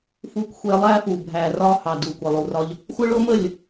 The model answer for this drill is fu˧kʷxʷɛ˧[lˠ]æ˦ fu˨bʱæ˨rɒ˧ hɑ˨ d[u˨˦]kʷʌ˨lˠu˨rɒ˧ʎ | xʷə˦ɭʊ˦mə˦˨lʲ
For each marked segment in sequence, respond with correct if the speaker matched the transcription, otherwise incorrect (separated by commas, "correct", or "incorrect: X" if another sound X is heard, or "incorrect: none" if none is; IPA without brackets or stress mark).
correct, incorrect: u˨